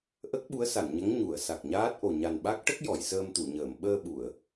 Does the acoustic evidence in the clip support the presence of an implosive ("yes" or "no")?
yes